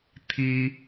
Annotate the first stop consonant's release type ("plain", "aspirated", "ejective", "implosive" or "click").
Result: aspirated